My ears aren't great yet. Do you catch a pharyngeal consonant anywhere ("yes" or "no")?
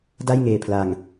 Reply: no